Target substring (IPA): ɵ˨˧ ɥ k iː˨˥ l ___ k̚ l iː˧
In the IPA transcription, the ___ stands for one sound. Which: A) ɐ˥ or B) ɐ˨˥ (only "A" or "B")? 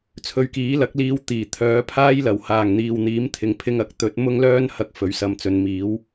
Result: B